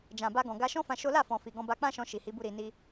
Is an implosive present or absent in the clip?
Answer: absent